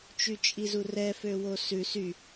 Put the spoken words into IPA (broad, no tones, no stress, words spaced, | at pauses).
t͡ʃyt͡ʃʼizurɛ føwosʉ sy